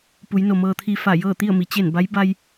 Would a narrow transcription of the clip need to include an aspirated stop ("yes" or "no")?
yes